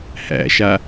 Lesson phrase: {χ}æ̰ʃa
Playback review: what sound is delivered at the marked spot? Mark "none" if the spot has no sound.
h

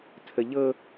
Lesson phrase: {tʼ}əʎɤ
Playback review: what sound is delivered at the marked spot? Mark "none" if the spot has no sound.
tʰ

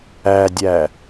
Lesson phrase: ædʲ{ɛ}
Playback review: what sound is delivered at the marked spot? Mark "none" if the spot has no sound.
æ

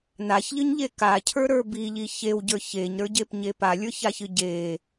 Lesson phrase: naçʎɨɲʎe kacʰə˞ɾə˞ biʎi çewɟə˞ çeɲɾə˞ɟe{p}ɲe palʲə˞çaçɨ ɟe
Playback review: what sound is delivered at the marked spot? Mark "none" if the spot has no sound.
p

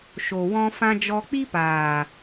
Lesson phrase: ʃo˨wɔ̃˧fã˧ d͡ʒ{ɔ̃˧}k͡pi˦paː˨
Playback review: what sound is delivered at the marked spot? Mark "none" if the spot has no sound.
ɔ˧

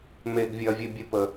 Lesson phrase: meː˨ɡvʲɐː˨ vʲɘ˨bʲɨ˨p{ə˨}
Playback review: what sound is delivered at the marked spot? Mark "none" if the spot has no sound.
ə˨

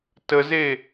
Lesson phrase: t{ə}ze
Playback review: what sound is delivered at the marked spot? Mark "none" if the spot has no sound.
ə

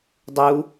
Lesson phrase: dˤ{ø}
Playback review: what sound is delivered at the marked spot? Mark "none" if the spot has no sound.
u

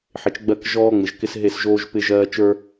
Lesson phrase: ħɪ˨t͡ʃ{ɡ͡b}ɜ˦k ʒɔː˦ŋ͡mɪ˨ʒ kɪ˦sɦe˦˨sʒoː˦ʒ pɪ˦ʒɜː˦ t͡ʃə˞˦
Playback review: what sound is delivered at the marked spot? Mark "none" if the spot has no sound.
ɡ͡b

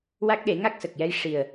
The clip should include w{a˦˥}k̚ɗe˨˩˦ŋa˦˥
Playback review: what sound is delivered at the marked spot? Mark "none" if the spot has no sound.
a˦˥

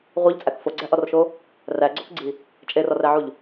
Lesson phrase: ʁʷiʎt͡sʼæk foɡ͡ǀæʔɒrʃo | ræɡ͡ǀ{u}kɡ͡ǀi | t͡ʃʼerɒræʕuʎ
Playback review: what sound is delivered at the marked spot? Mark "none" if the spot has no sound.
o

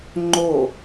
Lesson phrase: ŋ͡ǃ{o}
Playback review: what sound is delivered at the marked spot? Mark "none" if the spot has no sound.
o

